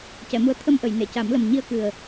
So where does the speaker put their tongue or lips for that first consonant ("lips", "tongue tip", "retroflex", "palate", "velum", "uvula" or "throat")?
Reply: palate